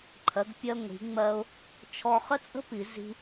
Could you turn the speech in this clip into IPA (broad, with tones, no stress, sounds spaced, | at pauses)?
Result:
ǃʰ ɜ˩˧ ɡ pʲ ɜ˧ ŋʷ i̤˩˧ ŋ͡m ɜ˧ ʊ̯ | t͡ʃʰ ɔ˧ χ ə˥ t͡sʼ ə̤˥ p i˩˧ z i̤˧